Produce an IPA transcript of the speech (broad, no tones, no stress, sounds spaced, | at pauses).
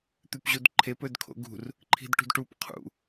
t̪ ʉ p ʑ u d ǃʰ e p ɵ d kʰ o̰ ɡ ṳ r | ǃʰ i̤ d ʈ ṳ d ʈ u p qʰ ṵ